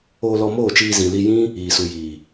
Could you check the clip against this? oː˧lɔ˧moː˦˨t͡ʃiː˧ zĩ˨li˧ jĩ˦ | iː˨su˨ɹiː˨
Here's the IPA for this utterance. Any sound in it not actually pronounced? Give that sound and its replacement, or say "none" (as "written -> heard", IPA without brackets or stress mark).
ɹ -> j